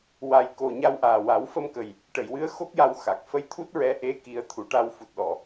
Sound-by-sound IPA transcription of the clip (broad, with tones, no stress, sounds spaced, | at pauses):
w a˨˩ j k o˨˩ ɲ a˧ w ʔ aː˨˩ w a˨˩˦ w f ə˧ m k ə˨˩ j | ʈ ə˨˩˨ j w ɨ˧˥ ə̯ x o˦˥ k̚ j a˧ w x a˨˩ k̚ f ə˧ j t̪ʰ u˦˥ t̚ ɹ ɛ˧˥ ʔ e˧˥ k i˨˩˦ ə̯ t̪ʰ u˨˩ ʈ a˧ w f u˨˩ t̚ ɗ ɔ˨˩˨